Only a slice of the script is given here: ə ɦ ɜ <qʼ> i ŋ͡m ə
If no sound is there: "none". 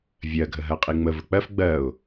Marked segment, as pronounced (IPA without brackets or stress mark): qʼ